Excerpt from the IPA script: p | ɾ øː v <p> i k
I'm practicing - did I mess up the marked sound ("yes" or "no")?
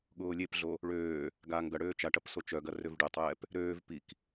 no